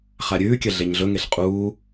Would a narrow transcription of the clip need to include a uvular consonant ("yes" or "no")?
yes